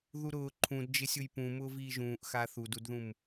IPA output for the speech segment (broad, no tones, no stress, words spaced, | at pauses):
ðuɾʊː ǃʰũdd͡ʒɪsʲʊj pũmʊː viːʒũːʔ xaθududðũm